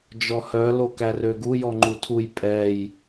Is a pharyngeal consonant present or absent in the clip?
absent